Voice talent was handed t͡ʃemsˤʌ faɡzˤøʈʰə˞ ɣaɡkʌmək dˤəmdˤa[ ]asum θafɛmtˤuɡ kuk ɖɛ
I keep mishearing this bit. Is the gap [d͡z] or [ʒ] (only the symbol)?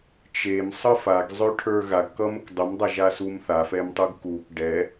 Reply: ʒ